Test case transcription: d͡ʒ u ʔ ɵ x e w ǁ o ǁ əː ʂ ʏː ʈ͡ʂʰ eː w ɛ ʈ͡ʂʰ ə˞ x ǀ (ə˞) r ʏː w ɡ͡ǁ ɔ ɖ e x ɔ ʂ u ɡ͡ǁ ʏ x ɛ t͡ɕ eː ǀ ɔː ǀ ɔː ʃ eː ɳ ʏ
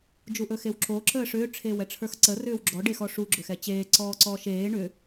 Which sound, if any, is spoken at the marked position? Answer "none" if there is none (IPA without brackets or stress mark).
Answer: ə